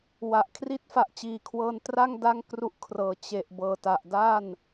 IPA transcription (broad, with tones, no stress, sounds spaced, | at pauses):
w a˨˩ ʔ kʰ r i˥˩ t̚ f a˨˩ ʔ t͡ɕ iː˨˩ kʰ w ɤː˧ n t r a˥˩ ŋ d a˥˩ ŋ k r u˥˩ ʔ kʰ r ɤː˨˩ t͡ɕ e˨˩ ʔ b ɤː˨˩ t a˨˩ ʔ d aː˥˩ n